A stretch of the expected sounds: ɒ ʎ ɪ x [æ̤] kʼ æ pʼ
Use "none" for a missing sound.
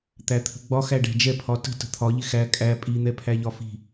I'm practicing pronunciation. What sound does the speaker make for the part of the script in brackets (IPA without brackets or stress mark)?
æ